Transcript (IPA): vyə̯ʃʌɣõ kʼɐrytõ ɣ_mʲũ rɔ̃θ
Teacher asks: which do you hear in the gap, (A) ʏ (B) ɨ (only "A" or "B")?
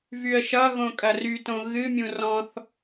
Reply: B